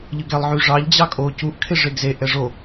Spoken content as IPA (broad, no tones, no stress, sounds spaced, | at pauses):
ʎ ɯ ɡ ɛ lˠ ʕ y ʐ ɑ ʎ d͡ʑ ɑ kʼ o c u ʔ kʰ e ʐ e ɡ z e ʔ ɛ ʐ o